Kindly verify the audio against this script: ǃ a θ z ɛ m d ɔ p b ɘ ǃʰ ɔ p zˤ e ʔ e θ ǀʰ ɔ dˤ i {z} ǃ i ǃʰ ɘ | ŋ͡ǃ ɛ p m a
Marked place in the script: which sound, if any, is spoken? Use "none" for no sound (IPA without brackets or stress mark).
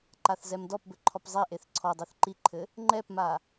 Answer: θ